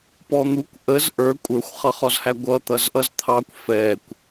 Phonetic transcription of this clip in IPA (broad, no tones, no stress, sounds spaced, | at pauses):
p ɔ n̪ u kʷ ʔ ə z ʔ ə˞ kʷʼ ə˞ xʷ χ ʌ χ ɔ z h æ ɡʷ ʌ t̪ ʌ z ʔ ʌ z t̪ʰ ɑ kʷ f ɛ kʷ